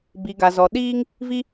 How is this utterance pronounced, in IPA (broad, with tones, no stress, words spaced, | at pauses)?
bi˨ɡa˨ zɔ˨ɗiː˦ŋ | vi˦